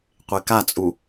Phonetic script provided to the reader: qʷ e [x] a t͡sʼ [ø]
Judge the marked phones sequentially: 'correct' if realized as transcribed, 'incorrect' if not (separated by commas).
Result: incorrect, incorrect